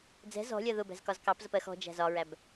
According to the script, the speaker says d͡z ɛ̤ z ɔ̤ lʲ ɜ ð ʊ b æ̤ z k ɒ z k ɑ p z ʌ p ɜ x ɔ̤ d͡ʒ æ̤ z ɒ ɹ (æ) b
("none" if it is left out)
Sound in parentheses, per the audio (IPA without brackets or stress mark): æ